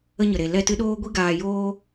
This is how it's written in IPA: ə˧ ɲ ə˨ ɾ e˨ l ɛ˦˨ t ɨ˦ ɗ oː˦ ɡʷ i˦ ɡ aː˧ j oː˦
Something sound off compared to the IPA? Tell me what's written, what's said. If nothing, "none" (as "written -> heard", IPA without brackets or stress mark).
none